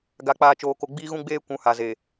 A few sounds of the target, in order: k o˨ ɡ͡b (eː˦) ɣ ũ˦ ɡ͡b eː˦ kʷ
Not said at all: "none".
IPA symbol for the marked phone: iː˦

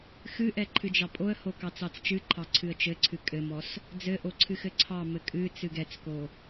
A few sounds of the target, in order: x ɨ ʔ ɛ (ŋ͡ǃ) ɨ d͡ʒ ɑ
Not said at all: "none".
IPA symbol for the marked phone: ǃʰ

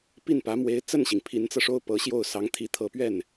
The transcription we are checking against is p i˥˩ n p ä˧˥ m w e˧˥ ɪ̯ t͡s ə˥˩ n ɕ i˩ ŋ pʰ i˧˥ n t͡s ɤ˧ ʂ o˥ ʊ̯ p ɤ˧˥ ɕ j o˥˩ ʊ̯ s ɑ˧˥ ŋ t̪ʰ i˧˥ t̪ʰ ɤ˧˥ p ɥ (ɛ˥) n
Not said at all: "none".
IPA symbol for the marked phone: ɛ˥˩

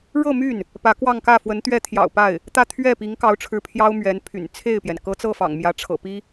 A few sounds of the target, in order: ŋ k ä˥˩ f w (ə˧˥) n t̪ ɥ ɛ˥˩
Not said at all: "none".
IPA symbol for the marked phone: ə˧˥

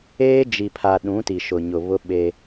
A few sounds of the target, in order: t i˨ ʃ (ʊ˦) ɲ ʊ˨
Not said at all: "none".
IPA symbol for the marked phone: ʊ˨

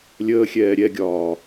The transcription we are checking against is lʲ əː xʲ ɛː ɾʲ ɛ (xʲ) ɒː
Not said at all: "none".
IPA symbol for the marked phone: ɡʲ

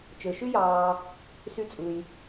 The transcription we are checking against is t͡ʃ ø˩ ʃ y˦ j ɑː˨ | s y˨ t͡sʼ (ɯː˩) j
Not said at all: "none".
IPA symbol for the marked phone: ɯ˩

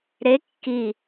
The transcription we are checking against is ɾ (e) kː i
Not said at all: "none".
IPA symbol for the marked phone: e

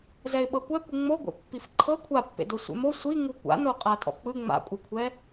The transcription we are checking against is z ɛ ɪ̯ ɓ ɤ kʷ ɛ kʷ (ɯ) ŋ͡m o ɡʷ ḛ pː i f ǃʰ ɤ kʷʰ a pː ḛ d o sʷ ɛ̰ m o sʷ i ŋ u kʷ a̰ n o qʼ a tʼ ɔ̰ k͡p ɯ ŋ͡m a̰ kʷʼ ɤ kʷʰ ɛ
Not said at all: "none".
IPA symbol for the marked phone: ɯ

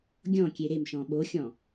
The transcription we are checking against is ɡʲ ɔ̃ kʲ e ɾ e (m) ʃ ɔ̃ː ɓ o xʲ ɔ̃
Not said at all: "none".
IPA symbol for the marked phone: m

